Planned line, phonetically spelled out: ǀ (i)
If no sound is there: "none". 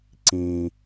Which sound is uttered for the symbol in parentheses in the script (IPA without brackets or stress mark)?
ĩ